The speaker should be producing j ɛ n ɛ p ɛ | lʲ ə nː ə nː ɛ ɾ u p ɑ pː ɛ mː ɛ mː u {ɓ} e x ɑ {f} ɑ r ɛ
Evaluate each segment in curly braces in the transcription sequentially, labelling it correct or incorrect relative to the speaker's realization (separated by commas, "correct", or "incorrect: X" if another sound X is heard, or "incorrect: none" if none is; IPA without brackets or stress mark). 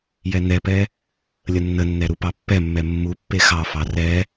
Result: incorrect: pː, correct